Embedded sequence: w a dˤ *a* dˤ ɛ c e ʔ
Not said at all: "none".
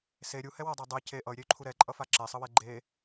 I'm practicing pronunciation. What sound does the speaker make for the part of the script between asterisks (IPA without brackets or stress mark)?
a